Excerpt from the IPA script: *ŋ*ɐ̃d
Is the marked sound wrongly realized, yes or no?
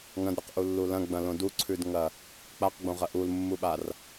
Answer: no